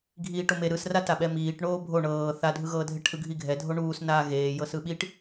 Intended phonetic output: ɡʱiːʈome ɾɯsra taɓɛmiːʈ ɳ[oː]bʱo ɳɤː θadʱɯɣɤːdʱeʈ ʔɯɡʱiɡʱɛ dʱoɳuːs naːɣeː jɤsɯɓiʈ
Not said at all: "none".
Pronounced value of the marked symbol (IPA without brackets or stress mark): oː